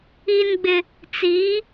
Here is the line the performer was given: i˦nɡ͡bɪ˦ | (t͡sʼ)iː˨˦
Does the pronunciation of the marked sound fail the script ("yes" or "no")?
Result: yes